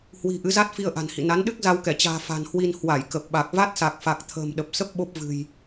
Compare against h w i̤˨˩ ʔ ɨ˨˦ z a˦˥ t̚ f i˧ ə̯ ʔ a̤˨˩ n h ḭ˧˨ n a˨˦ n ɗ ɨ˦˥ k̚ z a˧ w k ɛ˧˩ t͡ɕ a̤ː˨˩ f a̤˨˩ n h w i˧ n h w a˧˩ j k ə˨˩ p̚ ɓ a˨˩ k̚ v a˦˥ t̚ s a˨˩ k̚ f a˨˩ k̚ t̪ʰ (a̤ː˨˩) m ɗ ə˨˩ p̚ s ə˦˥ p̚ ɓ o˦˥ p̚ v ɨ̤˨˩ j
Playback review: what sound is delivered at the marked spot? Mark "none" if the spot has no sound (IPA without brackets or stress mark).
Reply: ə̤ː˨˩